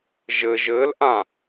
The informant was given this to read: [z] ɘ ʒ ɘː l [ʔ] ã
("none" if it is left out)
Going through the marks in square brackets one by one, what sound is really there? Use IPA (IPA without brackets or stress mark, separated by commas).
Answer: ʒ, ʔ